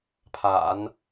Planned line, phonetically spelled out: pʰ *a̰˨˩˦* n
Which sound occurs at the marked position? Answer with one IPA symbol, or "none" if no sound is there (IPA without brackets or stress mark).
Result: a̰˨˩˦